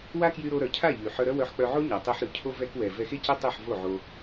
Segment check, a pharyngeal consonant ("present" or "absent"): present